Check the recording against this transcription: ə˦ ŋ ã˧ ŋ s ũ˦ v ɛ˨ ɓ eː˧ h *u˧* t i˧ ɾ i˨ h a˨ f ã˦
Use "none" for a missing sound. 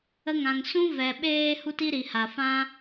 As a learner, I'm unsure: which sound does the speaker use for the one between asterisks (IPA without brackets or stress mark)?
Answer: u˧